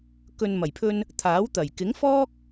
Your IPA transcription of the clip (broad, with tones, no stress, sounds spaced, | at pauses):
k ɵ˨ n m ɐ˨˩ j pʰ ɵ˧ n | t̪ʰ aː˨˥ w t̪ ɐ˨˩ j k ɪ˨˥ ŋ f ɔː˥ k̚